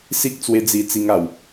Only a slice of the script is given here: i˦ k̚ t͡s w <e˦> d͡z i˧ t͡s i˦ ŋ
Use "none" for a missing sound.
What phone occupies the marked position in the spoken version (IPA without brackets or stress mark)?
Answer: e˦